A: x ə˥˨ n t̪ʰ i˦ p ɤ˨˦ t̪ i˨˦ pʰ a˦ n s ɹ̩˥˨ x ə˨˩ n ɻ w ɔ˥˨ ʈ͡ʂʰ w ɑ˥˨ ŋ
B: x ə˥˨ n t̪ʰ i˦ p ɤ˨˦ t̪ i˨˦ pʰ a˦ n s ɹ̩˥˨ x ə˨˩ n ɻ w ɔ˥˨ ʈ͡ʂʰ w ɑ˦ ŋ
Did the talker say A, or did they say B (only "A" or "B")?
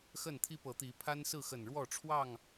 A